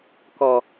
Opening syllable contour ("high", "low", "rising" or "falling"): low